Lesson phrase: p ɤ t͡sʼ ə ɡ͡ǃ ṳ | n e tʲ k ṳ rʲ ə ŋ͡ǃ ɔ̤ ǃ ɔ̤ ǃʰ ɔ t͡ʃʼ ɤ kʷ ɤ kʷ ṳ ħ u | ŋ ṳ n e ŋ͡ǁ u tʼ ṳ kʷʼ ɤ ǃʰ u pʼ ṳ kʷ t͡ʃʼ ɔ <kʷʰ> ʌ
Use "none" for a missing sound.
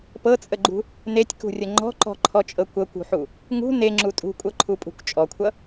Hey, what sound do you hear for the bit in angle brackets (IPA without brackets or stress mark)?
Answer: kʷʰ